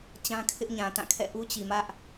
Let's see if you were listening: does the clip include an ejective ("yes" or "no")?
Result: no